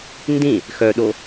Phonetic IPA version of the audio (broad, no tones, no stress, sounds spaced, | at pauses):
n d ĩ | x œ ɗ o